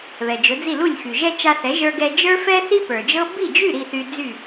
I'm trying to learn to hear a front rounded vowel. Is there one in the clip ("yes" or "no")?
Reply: yes